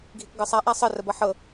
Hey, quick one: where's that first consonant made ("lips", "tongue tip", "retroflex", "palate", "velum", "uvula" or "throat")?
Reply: velum